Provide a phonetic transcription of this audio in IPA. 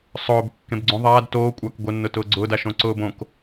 sˤ ʊː b kː ẽ b ɡ͡ǀ õ ðˤ aː d t oː kʷʼ aː k ɡʷ ɪ nː ʊ t ʊː ɡ͡ǀ ʊː d a ʃ õ ǀ ʊː b õ k

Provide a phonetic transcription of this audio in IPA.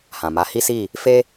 h ã˨ m a˨˦ h i˦ s i˦˨ | f e˦

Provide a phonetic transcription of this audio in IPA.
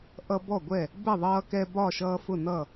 ʔ ʌ˦ b ɔ˥˨ ɡʷ ɛ˥˨ | b ɛ˥˨ ðˤ ʌː˦ k ɛ˦ b ɒ˥˨ ʃ ʌː˦ f ʊ˥˨ n ʌ˥˨

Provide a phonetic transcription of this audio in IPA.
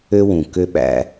ø˥ w ũ˩ k ø˥ ɓ æ̰˥

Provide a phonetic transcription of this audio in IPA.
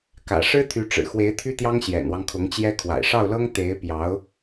k ä̰˨˩ ʂ ɻ̩˥ t̪ʰ y˧˥ ʈ͡ʂ ɻ̩˨˩ x w e˧˥ ɪ̯ t̪ʰ y˥ t̪ j ɑ˥ ŋ ɕ j ɛ̰˨˩ n w ɑ˦ ŋ kʰ ʊ˧˥ ŋ t͡ɕ j ɛ˥ kʰ w a̰˨˩ ɪ̯ ʂ ɑ˥˩ ʊ̯ l ɤ˥ ŋ t̪ e˧˥ ɪ̯ p j ɑ˧˥ ʊ̯

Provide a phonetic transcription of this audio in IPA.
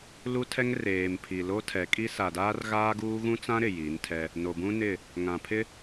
l u˦ tʰ ɛ˦ ŋ r eː˨ m pʰ i˨ l o˦ tʰ ɛ˨˦ kʼ i˦ s a˨ d aː˦ r ɣ aː˦ ɡ uː˦ ɣ ũ˦ t͡s ã˦ ɾ ɪ˨ j i˨˦ n tʰ ɛ˦ | n o˨ b ũ˦ n ɪ˦˨ | ŋ ã˨ pʰ ɪ˦

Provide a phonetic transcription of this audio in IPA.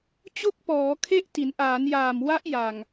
t͡ɕ o˥˩ k̚ p ɔː˩˦ kʰ e˥˩ ʔ t i˩˦ n ʔ aː˩˦ n j aː˨˩ m w a˦˥ ʔ j a˨˩ ŋ

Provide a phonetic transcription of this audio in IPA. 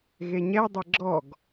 ɣ e ɲ ɛ dˤ ɛ ɡ͡ǁ ɔ ɡ

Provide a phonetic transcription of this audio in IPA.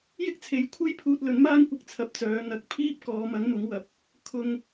j ɪ˥ k̚ t͡sʰ e˨˥ j kʷʰ e˥ j pʰ uː˧ t̚ l ɵ˨˥ n m aː˥ ŋ kʷ ɪ˧ k̚ t͡sʰ ɐ˨˥ p̚ t͡s œː˨˧ n̪ ɐ˨ k̚ pʰ iː˥ p̚ k ɔː˨˧ m ɐ˨˥ ŋ m ʊ˨˥ ŋ w ɐ˨ p̚ | kʰ ʊ˧ ŋ

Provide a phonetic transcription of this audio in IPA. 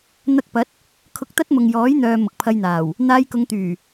n̪ ɐ˧ k̚ p ɐ˨˥ t̚ | kʰ ʊ˧ k̚ t̪ ɐ˥ t̚ m ʊ˨ ŋ j ɔː˨˥ j n̪ œː˨ m ʊ˨ k̚ pʰ ɐ˧ j n̪ aː˨˩ w | n̪ aː˧ j k ʊ˨˧ ŋ t̪ yː˨˩

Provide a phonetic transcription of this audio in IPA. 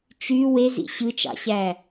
t͡ʃ y w e z ḭ ɕ ɯ t͡ʃ ɑ̰ ɕ æ

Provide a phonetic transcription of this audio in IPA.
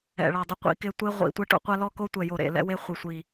ɛ̰˨˩ ɭ a˨˩ dˤ ɪ˧ qʷ ḭ˧ k ɪ˧ tʷ e˧ ʁʷ ḭ˨˩ tʷ ɛ˧ ʈ o̰˧ qʷ a˧ l ɔ˧ k o˧ tʷ ɛ˨˩ j o˨˩ ɾ ḛ˨˩ l ɛ̰˧ w e˧ χʷ ɪ˨˩ sʷ i˨˩

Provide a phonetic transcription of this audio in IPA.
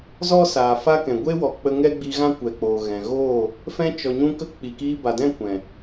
z ɔ˦ s aː˨ f a˦ k ɛ̃˨ ɡʷ e˦ w ɔ˨ k͡p ə˧ ŋ ɛ˦ ɡ͡b i˧ ɣ ã˦ kʷ ɛ˨ k͡p oː˨ ɣ ɛ̃˨ ɣ oː˦˨ | f ɛ̃˧ t͡ʃ ɔ˨ ɲ ũ˧ k ə˧ k͡p i˨ k iː˧ b a˨ d ɛ̃˦˨ kʷ ɛ̃˨

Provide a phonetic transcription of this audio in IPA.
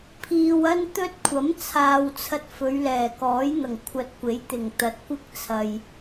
pʰ iː˨ w ɐ˥ n t̪ ɵ˥ t̚ kʷʰ ɐ˨˥ m t͡sʰ aː˨ w t͡sʰ ɐ˧ t̚ f ɵ˨˧ ɥ l ɛː˨˩ k ɔː˨˥ j n̪ ɐ˨˩ ŋ kʷʰ ɐ˨ t̚ kʷ e˨˥ j t̪ ɪ˨˩ ŋ t̪ ɐ˨˥ t̚ kʷ ɪ˥ k̚ t͡sʰ ɐ˨ j

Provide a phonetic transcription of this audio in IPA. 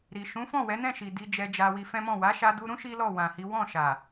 ɾ i˨ ʃ ũ˨˦ f ɔ̃˦˨ w ɛ˨˦ n ɛ̃˦˨ ʃ i˨ d i˧ d͡ʒ ɛ˧ d͡ʒ a˧ w i˧ f ɛ̃˦ m ɔ̃˦˨ w a˨˦ ʃ a˧ d u˧ ɾ ũ˦ ʃ i˦ l ɔ˦˨ w ã˨ h i˨˦ w ɔ̃˦˨ ʃ a˨

